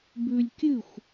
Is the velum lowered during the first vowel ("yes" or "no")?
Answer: no